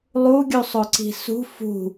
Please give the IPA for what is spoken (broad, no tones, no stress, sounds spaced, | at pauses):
lˠ u ɡʲ u sˤ o ǀ i̤ s ṳ f ṳ